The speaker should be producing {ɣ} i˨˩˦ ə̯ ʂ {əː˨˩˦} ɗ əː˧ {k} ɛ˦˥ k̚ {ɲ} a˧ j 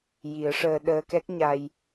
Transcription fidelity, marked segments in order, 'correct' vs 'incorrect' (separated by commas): incorrect, incorrect, correct, correct